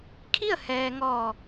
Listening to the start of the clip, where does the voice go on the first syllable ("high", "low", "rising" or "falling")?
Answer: falling